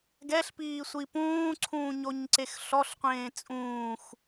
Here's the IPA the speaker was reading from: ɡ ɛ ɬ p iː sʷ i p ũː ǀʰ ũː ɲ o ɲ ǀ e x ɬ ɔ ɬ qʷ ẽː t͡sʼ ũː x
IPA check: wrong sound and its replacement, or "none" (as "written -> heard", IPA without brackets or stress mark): none